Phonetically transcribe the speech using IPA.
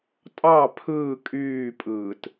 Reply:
tʼ ɑ pʰ ɯː kʼ yː pʼ ɯː t

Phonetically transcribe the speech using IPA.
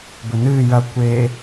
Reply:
b ɵ n ɨː j ɐ kʷ e

